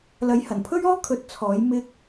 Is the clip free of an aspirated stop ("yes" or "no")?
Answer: no